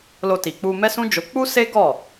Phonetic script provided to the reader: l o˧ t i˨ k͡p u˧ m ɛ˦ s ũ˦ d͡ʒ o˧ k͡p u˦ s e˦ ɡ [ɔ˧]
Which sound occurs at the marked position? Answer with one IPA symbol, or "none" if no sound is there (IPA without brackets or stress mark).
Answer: ɔ˦˨